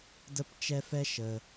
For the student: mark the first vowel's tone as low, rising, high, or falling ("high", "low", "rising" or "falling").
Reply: falling